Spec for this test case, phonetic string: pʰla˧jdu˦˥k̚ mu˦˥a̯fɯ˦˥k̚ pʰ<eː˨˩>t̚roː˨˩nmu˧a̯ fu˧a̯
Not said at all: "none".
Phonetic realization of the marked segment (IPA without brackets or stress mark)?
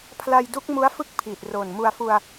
iː˨˩